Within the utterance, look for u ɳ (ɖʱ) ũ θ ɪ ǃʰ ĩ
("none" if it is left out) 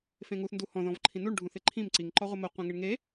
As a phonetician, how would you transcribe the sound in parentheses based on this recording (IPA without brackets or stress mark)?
ɖʱ